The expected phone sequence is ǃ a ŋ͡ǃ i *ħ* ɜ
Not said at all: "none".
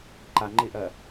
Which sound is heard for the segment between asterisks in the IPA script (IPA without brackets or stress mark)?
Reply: ʔ